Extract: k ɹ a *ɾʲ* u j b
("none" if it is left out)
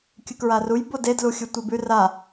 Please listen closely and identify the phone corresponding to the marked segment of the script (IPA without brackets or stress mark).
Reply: r